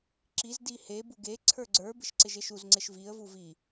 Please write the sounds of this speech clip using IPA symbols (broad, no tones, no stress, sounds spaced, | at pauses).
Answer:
ǁ i z d i h e b u ɡ e ǀʰ ə˞ ɡ͡ǀ ə˞ b ɪ ʃ ǀ ɪ ʒ e ʃ u z ŋ͡ǀ ɪ ʃ v i ə̯ v u v i